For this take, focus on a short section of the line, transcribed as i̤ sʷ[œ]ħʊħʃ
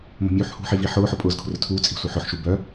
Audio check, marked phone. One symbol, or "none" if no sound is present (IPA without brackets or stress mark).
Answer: œ